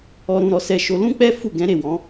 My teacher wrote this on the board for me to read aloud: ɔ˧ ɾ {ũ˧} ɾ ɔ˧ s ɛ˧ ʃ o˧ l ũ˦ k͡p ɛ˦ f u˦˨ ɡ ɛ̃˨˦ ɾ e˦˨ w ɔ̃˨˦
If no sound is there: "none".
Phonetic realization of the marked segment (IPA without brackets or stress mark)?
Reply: ũ˧